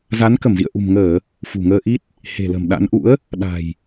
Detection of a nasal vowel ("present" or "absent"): absent